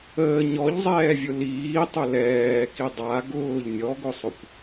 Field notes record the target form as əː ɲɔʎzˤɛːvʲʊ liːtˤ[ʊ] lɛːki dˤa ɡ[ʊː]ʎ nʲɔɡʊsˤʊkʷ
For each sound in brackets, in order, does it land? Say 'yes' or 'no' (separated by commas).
yes, yes